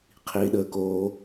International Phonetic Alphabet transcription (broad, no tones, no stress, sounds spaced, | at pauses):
qʰ i ɗ ə k o